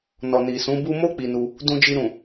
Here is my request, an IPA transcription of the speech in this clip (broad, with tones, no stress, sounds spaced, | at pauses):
n ɔ˨ n i˨ s ũ˨˦ b u˦ m o˦ k͡p i˧ n u˧ | d ũ˧ d͡ʒ i˧ ɾ ũ˨